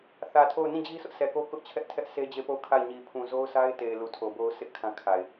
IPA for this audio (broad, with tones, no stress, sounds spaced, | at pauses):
θ ä˨ tʰ o˦˨ ʊ̯ n ĩ˦˨ d͡ʑ i˦ sʰ ʊ˦ ʔ s ɛ˨ k o˦ k ʊ˦ ʔ t͡ɕʰ ɛ˦ ʔ tʰ ɛ˦ ʔ s e˦ d͡ʑ e˦˨ p o˦˨ ʊ̯ kʰ a˦˨ ɪ̯ ɲ i˨ pʰ ũ˨ z o˦ ʊ̯ sʰ a˦ ɪ̯ t e˨ ɪ̯ l u˨ tʰ o˨ b o˦ ʊ̯ sʰ ɪ˦ ʔ kʰ ã˦ kʰ a˨ ɪ̯